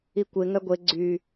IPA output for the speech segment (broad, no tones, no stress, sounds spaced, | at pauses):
i kʷ e ŋ œ ɡʷ e ɡ͡ǀ y